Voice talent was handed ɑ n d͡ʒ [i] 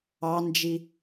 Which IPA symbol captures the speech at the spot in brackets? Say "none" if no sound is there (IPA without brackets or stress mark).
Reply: i